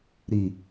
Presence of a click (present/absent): absent